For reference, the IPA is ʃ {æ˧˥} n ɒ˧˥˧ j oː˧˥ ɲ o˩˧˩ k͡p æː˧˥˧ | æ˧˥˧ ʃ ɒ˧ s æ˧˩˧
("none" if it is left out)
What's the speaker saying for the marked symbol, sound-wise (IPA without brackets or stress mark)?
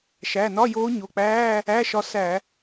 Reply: æ˩˧˩